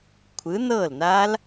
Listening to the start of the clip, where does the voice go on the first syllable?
rising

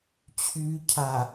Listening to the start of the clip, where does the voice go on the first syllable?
low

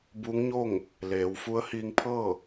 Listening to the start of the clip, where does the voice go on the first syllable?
rising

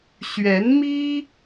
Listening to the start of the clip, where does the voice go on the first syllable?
rising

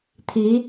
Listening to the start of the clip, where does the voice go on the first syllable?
rising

